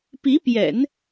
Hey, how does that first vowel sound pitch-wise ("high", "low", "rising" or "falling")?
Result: rising